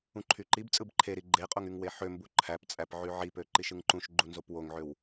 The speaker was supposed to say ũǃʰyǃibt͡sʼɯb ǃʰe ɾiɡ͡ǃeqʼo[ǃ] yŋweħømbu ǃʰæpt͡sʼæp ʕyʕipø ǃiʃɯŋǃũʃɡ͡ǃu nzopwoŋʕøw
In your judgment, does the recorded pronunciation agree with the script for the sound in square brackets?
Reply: no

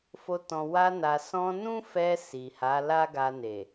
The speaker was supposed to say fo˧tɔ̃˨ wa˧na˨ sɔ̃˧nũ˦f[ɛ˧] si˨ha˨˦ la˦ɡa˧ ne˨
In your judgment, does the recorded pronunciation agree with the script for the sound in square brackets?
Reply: yes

